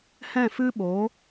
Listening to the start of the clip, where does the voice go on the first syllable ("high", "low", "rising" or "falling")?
falling